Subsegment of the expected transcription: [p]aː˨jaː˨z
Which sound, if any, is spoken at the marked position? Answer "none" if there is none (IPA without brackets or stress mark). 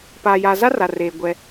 p